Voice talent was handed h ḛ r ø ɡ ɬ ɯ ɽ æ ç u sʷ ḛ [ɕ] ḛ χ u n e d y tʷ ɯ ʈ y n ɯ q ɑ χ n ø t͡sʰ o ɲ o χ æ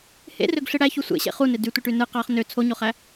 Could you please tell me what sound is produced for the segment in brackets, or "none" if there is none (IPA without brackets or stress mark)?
ɕ